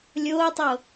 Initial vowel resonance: oral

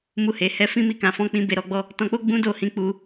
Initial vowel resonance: oral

